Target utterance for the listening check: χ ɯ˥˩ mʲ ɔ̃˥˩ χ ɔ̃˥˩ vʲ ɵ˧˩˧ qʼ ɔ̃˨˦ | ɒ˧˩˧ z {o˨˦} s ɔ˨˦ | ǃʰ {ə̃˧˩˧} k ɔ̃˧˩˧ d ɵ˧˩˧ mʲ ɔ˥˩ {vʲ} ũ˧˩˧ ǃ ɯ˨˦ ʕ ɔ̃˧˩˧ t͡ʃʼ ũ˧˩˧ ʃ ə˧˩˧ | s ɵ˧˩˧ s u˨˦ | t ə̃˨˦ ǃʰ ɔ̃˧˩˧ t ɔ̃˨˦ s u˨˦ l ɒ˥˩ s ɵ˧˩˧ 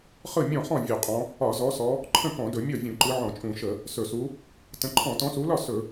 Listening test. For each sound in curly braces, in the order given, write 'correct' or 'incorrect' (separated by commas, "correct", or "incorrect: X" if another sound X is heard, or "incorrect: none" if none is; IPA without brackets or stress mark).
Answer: incorrect: ɔ˨˦, incorrect: ə̃˥˩, correct